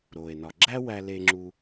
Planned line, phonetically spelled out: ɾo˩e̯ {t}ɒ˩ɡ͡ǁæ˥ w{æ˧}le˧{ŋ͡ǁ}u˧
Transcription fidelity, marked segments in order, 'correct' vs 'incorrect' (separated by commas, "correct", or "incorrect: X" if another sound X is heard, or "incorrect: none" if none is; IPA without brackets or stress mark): incorrect: n, correct, correct